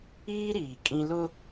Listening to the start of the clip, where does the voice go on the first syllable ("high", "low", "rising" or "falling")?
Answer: high